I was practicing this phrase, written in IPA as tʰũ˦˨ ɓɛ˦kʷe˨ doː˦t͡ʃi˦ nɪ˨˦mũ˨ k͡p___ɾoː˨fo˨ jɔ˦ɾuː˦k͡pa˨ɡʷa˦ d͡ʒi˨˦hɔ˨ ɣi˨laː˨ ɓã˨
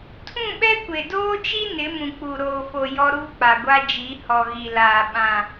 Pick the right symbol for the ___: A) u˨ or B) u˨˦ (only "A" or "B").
A